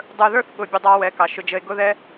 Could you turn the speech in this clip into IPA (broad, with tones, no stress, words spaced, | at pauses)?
dˤə˞˧ðə˞˦θ ɠʊ˦˨bʲʊ˦dˤɑ˦ wɛ˨˦kɑ˨ʃʊ˧d͡ʒə˧e̯ ɡʊ˦ðɛ˦